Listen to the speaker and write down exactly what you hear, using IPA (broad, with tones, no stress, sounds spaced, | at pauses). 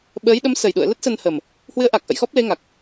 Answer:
ɓ əː˨˦ j ɗ ə˨˦ m s ə˨˩ j ɗ ṵ˧˨ ə̯ l ə˦˥ t̚ s ə˧ n h ə˨˩ m | h w ɨ˨˦ ə̯ ʔ a˨˩ k̚ ʔ ə̰˧˨ j x ɔ˦˥ p̚ l e˨˦ ŋ a˨˩ k̚